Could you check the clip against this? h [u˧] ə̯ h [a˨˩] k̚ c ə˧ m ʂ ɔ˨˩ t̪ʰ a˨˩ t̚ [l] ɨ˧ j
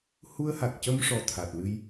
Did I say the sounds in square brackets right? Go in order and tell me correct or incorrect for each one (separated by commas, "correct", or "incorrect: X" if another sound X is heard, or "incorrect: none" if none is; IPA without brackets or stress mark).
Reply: correct, correct, correct